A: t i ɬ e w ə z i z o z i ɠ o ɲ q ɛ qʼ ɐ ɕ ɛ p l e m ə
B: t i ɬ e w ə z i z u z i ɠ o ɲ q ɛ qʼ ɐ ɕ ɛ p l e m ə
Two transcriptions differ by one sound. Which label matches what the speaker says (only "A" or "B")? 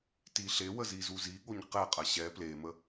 B